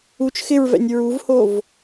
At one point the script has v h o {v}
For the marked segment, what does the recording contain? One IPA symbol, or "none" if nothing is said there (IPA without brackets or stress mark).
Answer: v